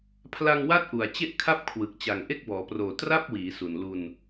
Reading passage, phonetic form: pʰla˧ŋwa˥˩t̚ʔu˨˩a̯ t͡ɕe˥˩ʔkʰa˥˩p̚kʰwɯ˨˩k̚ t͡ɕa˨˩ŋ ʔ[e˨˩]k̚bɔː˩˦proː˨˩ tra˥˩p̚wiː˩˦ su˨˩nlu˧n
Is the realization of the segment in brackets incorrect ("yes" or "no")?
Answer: yes